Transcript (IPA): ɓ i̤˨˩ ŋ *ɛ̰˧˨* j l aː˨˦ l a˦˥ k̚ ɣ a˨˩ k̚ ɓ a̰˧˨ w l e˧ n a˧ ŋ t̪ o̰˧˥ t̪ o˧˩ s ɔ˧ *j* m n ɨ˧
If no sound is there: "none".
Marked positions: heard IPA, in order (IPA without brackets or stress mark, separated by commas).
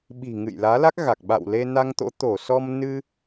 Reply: ɨ̰˧˨, none